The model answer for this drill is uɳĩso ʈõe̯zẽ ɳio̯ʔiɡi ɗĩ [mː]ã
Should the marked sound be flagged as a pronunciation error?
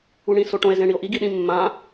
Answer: no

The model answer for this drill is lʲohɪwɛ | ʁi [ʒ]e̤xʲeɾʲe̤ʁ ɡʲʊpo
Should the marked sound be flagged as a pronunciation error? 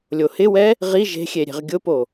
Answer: no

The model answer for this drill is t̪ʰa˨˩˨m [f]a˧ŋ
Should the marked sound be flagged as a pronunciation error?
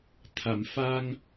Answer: no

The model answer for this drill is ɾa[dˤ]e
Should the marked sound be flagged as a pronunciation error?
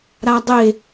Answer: no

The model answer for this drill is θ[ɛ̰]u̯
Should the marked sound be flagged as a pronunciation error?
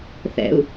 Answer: no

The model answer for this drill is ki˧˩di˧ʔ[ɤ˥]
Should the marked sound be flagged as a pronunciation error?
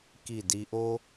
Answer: yes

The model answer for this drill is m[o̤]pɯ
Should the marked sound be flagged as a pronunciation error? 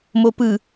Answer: yes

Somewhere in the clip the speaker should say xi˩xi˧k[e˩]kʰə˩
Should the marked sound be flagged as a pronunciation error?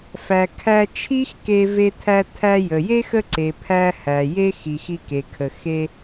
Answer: no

